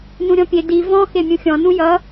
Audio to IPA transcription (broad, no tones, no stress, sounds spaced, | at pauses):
n ũ ɾʲ ɔ̃ pʲ e d i v ɔ̃ x e mʲ ũ xʲ ɔ̃ n ũ j ʌ